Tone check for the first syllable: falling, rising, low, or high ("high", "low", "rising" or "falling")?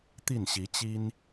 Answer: falling